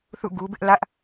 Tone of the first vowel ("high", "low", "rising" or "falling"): falling